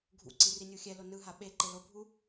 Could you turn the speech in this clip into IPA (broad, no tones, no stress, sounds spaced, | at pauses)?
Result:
ɡʱ ṵ ǀ i r i nʲ u xʲ ɛ l o n ɯ ɦ a ɓ e ǃ e l o bʱ u